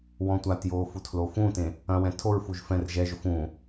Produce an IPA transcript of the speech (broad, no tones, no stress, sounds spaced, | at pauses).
w ɔ̃ tʷ a t j oː f u tʰ l o f ũ t ẽ | ɐ̃ w ɛ̃ tʰ o ɹ f u ʒ f ɛ̃ r ʒ ɛ ʒ ʊ f ũ